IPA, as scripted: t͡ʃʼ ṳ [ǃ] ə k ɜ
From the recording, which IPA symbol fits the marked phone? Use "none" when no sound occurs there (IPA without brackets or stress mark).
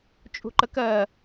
ǃ